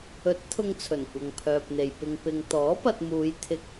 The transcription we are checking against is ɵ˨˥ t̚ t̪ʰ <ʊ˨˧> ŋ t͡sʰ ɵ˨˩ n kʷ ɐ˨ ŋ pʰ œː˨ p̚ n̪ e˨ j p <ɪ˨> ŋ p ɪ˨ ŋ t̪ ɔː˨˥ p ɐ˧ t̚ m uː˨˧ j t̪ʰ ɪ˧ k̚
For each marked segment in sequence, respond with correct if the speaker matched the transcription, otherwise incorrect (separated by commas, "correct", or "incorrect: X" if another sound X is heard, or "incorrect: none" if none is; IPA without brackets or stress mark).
incorrect: ʊ˧, correct